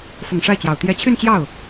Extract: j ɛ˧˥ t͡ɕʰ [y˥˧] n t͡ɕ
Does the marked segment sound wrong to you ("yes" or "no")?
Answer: no